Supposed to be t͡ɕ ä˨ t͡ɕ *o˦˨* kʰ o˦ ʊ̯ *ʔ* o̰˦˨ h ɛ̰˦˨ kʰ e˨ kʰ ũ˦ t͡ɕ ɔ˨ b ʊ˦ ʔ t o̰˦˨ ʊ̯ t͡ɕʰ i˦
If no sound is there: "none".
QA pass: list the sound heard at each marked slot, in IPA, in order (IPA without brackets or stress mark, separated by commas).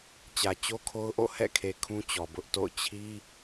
o˦, ʔ